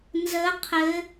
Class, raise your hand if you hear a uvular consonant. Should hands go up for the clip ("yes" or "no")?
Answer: yes